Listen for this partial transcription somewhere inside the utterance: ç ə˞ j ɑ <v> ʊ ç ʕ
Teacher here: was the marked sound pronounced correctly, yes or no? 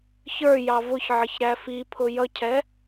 yes